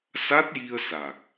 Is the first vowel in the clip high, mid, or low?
low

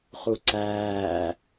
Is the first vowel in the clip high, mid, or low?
high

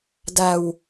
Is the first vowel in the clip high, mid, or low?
low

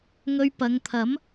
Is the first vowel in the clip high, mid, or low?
mid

